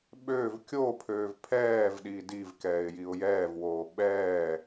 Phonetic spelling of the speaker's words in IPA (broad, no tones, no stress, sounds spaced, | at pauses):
ɓ øː v kʲ o pʰ øː v pʰ ɛː v ɗ iː d i v k ɛː ɪ̯ j i ʊ̯ j ɛː v w oː ɓ ɛː